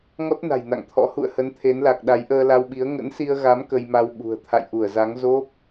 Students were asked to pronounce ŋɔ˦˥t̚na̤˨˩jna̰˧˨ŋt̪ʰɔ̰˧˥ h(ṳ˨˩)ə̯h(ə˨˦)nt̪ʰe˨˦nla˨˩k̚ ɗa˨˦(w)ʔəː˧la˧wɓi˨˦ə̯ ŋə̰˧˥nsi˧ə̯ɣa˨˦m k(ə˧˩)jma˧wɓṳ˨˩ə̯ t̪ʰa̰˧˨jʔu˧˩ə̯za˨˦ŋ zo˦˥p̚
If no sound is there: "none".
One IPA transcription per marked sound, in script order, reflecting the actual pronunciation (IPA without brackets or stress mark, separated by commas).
ṵ˧˨, ə˨˦, j, ə˧